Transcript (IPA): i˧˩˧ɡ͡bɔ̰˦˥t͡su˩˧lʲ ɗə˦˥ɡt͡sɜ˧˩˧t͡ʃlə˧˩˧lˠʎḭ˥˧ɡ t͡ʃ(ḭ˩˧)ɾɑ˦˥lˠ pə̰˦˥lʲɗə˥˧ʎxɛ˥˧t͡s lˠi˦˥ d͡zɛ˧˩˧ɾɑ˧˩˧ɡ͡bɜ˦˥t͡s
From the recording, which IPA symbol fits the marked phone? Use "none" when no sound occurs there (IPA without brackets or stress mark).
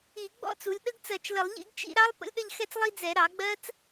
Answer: ḭ˥˧